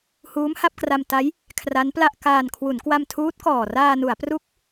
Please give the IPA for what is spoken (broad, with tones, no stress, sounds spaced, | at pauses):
h uː˦˥ m h a˥˩ p̚ k r a˧ m t a˦˥ j | kʰ r a˦˥ n p l a˥˩ ʔ k aː˧ n kʰ w u˩˦ n k w a˧ m tʰ uː˦˥ t̚ k ɔː˨˩ r aː˧ n u˩˦ a̯ p r u˦˥ k̚